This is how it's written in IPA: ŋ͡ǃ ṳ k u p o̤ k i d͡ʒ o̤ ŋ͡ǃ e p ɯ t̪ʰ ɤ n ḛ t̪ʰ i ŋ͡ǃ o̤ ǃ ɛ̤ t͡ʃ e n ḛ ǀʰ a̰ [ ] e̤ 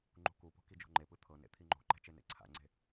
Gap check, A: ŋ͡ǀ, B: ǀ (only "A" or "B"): A